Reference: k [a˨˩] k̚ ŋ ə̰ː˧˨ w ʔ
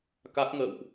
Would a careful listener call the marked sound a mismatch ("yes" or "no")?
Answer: yes